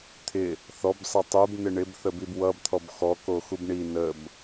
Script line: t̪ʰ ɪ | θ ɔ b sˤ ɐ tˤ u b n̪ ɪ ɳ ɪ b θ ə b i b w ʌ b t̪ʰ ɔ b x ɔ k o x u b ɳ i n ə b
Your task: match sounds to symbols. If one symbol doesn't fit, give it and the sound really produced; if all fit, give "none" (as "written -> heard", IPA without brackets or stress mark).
none